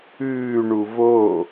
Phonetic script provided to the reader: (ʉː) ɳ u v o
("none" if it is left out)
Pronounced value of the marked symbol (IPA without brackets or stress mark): ʉː